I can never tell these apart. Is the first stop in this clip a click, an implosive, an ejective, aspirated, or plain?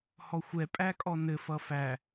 ejective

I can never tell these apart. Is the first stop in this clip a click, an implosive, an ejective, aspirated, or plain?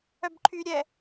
plain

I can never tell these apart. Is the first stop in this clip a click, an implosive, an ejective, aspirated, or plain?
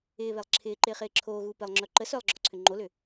click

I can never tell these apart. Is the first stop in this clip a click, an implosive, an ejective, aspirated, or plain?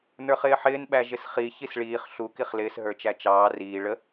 implosive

